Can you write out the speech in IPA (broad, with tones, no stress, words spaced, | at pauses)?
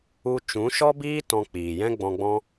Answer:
u˧ t͡ʃũ˨˦ʃɔ˦biː˦ tɔ̃˧k͡piː˨jɛ̃˦ ɡ͡bɔ̃˧ɡ͡bɔ̃˦